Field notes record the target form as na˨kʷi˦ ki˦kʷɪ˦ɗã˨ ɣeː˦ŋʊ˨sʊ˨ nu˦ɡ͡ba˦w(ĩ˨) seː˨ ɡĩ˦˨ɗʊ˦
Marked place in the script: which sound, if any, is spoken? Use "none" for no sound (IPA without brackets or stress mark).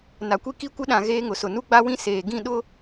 ĩ˦